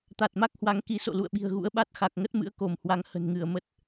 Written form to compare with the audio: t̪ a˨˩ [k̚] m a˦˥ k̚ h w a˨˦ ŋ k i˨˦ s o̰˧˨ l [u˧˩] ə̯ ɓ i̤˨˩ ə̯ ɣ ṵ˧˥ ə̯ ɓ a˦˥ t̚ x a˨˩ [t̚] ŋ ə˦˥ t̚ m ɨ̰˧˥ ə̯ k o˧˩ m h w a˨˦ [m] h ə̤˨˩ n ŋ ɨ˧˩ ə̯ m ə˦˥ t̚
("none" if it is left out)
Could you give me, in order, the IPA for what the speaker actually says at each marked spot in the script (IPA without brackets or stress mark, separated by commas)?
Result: t̚, ṵ˧˨, k̚, ŋ